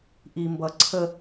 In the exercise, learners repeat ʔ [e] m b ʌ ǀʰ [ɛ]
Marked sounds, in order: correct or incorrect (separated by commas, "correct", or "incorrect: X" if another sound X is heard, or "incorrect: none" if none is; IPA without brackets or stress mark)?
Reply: incorrect: i, incorrect: ə